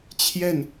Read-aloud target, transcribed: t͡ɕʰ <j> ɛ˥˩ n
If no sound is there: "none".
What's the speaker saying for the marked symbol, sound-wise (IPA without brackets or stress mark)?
j